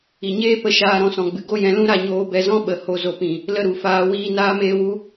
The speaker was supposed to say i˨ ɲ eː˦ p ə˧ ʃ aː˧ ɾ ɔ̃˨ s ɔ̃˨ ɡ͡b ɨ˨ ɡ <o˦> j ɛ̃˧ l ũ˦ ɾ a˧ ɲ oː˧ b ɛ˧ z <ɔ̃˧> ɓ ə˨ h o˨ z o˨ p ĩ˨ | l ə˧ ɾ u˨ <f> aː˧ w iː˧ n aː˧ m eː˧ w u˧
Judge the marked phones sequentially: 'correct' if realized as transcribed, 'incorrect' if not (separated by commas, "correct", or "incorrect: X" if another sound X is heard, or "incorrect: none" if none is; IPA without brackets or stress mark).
correct, incorrect: ɔ̃˦, correct